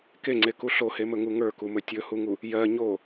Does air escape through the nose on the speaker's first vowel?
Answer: no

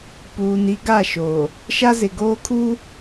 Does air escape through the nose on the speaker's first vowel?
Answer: no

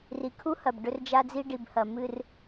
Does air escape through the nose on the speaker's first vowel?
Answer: no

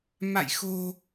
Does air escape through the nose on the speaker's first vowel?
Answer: no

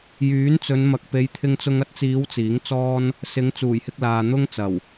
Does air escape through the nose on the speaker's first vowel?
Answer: no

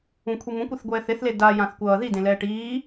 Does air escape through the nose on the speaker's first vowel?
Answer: yes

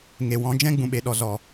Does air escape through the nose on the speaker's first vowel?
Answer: no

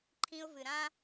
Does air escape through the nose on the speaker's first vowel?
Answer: yes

